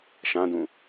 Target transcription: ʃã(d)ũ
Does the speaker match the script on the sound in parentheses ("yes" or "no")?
yes